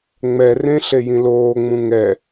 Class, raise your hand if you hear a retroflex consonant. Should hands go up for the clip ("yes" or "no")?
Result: no